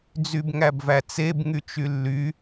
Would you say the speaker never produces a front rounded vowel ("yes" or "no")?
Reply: no